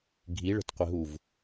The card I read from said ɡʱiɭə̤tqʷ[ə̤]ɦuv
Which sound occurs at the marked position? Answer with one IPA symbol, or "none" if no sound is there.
ə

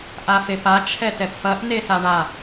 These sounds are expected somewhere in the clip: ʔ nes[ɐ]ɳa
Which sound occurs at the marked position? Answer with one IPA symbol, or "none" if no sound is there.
a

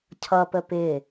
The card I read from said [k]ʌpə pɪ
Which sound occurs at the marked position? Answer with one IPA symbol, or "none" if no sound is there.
cʰ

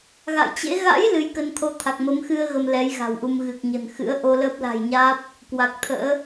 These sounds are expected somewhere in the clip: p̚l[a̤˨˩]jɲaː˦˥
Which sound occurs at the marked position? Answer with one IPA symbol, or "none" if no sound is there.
a̤˨˩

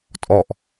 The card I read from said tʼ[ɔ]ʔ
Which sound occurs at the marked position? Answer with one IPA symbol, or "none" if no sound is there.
ɔ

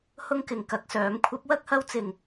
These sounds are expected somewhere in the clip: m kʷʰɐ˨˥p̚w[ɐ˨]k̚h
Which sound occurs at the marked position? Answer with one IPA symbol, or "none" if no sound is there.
ɐ˥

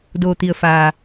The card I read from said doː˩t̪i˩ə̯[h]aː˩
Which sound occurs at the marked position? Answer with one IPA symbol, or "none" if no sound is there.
f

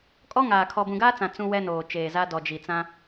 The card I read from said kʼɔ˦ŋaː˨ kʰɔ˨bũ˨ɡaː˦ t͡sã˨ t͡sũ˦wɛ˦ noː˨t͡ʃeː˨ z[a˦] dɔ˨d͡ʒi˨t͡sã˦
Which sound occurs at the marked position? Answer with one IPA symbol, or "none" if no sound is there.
a˦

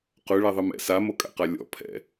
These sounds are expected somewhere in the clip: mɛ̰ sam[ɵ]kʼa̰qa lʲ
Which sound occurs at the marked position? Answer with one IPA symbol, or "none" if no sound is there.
o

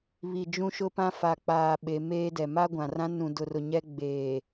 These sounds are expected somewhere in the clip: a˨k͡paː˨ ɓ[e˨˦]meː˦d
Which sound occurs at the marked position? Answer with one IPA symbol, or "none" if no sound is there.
e˨˦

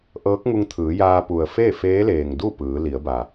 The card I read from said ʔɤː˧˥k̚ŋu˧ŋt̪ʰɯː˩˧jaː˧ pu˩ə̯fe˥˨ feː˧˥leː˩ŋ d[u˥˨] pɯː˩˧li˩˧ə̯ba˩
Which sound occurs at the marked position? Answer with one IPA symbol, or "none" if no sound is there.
u˥˨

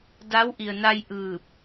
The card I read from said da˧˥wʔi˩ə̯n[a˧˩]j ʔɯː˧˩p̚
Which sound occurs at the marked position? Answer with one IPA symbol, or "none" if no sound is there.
a˧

